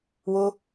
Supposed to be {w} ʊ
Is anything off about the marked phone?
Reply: no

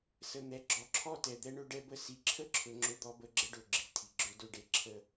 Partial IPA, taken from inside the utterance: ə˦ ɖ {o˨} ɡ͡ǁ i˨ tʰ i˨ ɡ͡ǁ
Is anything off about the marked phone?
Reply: yes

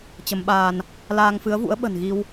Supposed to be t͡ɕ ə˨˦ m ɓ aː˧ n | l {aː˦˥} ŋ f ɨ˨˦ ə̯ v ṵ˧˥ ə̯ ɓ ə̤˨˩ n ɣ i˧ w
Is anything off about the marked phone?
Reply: yes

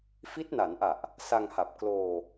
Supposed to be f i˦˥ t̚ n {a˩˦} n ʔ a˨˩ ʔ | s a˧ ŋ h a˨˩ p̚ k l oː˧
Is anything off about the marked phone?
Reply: no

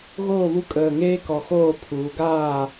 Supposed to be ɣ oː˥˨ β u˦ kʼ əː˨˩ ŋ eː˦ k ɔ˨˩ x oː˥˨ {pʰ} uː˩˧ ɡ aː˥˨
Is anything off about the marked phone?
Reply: no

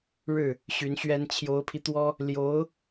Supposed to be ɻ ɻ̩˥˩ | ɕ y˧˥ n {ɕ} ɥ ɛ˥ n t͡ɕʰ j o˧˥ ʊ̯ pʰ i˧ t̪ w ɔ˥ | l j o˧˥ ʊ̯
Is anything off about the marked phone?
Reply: no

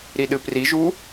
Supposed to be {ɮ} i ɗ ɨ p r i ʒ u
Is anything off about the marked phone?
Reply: yes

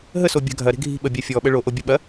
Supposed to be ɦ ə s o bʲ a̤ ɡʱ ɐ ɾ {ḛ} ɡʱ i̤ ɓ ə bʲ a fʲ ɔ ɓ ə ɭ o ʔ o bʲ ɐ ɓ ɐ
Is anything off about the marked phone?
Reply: yes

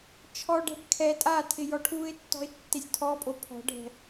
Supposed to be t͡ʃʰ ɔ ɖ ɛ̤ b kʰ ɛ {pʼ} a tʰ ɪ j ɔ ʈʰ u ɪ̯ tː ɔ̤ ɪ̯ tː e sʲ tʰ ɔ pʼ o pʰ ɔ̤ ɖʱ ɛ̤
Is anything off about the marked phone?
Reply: yes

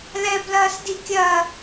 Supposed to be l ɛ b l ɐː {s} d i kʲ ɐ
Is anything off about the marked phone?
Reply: no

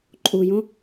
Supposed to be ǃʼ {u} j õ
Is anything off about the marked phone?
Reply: no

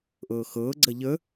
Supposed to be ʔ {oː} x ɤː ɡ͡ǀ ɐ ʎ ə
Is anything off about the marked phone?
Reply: yes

